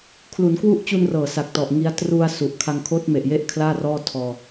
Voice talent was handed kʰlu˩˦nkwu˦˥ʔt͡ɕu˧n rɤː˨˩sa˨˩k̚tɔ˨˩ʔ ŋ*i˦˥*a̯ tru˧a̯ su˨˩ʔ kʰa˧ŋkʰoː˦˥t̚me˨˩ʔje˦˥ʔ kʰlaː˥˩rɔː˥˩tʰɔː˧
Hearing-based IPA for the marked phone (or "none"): i˦˥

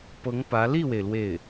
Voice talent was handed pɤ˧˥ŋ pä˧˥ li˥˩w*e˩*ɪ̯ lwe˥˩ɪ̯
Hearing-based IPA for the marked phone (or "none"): e˩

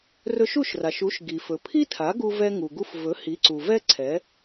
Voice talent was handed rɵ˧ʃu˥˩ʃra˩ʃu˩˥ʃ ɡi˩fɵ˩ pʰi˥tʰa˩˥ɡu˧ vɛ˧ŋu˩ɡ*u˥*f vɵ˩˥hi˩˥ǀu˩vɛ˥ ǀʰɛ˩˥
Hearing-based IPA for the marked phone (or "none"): u˧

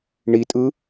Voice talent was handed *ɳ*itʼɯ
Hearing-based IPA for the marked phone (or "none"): ɳ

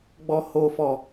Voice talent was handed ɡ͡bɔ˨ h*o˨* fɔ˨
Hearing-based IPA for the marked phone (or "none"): o˨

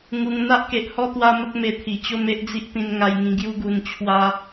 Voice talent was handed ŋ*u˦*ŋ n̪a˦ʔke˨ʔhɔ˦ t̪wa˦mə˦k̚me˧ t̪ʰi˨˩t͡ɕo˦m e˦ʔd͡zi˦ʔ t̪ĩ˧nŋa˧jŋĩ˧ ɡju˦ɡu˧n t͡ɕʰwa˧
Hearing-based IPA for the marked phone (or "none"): u˧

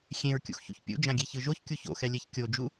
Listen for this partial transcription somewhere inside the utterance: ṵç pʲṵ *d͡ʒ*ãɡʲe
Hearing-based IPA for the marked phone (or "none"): d͡ʒ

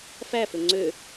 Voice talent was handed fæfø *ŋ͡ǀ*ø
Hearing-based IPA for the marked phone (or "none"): ŋ͡ǀ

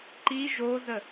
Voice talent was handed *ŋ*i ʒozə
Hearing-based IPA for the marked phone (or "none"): ǃ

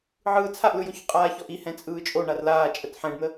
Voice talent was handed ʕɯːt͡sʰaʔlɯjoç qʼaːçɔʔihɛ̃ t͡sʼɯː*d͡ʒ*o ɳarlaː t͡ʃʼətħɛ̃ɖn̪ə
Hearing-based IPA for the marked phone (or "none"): t͡ʃʼ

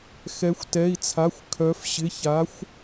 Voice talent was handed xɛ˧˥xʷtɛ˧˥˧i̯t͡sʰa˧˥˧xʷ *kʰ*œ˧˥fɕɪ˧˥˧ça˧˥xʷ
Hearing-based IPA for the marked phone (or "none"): kʰ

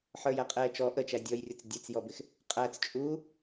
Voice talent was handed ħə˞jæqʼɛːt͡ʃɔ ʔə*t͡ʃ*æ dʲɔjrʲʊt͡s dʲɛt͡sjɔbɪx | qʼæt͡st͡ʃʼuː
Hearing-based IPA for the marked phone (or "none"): t͡ʃ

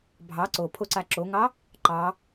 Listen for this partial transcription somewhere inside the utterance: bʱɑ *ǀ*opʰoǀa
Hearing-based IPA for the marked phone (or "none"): ǀ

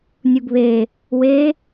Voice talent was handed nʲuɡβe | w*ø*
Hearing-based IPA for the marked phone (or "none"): e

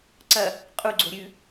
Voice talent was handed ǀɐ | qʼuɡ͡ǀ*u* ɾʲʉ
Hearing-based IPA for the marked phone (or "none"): o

